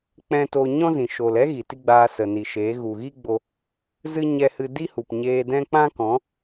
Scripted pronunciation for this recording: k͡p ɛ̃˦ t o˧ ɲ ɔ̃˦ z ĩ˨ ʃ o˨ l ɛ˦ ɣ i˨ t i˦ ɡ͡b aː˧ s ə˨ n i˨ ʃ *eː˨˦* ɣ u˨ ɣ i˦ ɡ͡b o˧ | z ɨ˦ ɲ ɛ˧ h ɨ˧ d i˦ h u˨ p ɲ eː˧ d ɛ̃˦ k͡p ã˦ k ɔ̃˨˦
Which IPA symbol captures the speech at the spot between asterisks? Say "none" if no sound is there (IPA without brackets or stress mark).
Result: eː˨˦